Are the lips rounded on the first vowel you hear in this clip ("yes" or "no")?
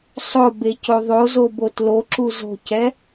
yes